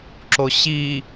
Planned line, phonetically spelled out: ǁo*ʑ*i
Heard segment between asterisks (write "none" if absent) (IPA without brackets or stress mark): ɕ